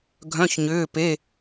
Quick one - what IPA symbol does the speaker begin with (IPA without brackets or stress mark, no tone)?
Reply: ɡʱ